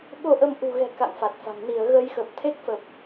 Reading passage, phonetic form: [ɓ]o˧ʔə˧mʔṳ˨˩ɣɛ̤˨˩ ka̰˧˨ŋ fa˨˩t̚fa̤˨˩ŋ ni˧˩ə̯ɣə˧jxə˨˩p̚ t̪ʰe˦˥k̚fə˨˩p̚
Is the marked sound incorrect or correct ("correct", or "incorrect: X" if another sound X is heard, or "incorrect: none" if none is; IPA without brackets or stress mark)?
correct